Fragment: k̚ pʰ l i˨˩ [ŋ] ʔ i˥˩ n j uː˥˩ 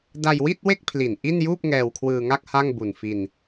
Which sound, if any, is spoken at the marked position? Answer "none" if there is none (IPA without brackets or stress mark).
n